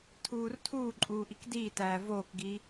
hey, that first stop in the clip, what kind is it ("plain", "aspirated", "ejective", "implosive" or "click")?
aspirated